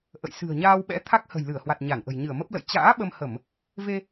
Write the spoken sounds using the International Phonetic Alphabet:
ʔə̰˧˨j sɨ̤˨˩ə̯ɲaː˧wɓɛ̰˧˥ t̪ʰa˦˥k̚hə̤˨˩jlɨ˧˩ə̯hwa˨˩t̚ ɲa˧˩nʔə̤˨˩j ɲɨ˧˩ə̯mə˦˥p̚lə̰˧˨j t͡ɕa̰ː˧˥ ɓə˧mhə˧˩˨m | ve˧

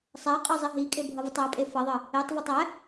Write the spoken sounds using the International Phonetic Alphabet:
sˤæqʼɤ zˤiɦikʼe bʱʌvətˤæpʼe fʌðˤɤ | etˤvetˤ æ

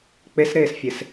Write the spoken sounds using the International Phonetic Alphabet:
k͡pesɾeːsfʲes

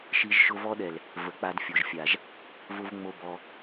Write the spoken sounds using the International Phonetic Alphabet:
ʃi˧ʒ ʃʊ˧vɔ˦ɗɛ˨l | və˨k͡pa˧d fʲo˨ʒfʲa˨ʒ | vʊ˦v ŋ͡mo˦bɔ˧

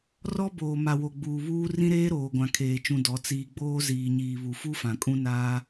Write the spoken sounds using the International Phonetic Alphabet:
rɔ˦ boː˨ma˨wo˨ ɡ͡buː˨βuː˦ rĩ˦ɾeː˦ ɾoː˨ɡʷã˨kʰeː˨ t͡ʃũ˨ dɔ˨˦t͡siː˦ ɡ͡boː˦ ziː˨ɲiː˨ βu˨fu˦ fã˨kʼũ˦naː˦

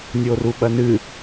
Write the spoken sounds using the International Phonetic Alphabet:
nʲoruɓɐnɨ

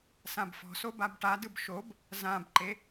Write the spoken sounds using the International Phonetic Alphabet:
sãbfɔ̤so babʈadɯb ʃob | zãbǃe

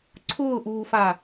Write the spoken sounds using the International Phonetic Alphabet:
ǀʰʊːʔuːfa

